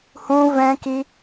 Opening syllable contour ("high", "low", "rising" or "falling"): high